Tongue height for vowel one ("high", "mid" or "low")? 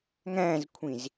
low